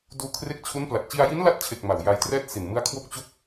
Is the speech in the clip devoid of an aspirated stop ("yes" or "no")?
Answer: no